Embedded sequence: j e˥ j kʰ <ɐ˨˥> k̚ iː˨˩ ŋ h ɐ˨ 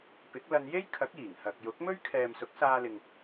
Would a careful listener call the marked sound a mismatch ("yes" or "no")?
no